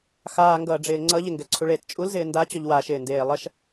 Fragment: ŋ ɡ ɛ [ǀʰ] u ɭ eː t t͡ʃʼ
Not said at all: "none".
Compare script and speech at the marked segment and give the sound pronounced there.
ǀʰ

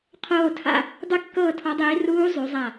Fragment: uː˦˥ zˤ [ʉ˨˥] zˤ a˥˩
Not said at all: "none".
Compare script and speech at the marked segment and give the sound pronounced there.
ʉ˨˥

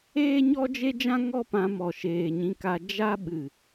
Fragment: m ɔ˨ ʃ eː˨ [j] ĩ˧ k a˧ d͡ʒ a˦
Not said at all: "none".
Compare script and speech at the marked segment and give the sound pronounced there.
ɲ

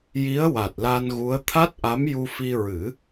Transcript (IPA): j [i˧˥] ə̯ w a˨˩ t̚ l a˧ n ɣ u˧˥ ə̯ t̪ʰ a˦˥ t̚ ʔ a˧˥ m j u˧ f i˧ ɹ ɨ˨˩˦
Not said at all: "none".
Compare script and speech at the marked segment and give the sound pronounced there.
i˧˥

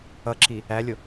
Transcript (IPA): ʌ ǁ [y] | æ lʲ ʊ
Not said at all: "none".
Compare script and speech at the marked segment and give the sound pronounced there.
i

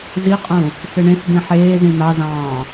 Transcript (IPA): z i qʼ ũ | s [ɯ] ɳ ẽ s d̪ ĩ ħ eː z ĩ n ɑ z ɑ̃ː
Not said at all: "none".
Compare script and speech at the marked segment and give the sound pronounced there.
ɯ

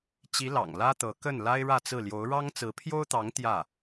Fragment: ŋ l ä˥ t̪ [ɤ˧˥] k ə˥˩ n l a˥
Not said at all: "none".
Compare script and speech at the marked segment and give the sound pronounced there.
ɤ˧˥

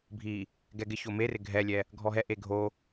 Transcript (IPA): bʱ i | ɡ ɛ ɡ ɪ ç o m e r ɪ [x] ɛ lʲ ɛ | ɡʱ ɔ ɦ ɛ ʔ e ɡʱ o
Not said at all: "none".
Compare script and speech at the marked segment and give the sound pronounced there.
ɡʱ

